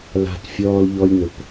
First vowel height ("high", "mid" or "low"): low